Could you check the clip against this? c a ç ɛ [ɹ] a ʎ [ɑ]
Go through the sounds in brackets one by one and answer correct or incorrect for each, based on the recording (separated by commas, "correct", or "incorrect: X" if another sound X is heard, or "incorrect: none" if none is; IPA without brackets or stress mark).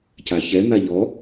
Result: incorrect: n̪, incorrect: ɔ